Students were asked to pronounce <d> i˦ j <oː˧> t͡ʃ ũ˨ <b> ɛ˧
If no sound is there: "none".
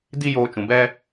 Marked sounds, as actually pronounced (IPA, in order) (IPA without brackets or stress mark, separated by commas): d, oː˧, b